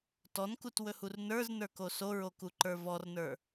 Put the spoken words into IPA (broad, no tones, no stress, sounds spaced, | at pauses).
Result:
t ɔ n k u t w ɵ h u r n ə˞ z n ə˞ k o s o ɹ o k u ǃ ə˞ v ɔ r n ə˞